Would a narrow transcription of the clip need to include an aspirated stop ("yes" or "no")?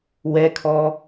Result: yes